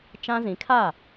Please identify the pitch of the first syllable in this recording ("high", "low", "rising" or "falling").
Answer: high